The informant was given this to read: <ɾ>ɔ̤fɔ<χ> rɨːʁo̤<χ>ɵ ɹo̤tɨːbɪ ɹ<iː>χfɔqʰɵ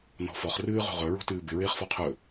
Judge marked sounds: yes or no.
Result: no, yes, no, no

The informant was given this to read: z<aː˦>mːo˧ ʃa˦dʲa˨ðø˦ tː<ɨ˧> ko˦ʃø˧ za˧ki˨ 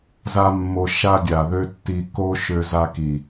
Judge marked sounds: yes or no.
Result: no, no

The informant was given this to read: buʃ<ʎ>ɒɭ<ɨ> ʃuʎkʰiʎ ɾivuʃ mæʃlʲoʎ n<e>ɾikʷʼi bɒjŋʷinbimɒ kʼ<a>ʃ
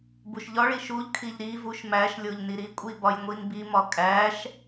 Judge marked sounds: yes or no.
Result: yes, no, no, no

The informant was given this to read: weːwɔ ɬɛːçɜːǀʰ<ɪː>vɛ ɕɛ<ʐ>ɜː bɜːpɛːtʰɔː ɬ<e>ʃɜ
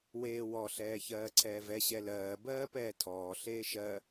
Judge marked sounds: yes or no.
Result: no, no, no

